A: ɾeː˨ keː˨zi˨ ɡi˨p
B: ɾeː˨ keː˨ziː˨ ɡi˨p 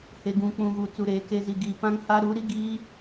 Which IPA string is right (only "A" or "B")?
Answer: A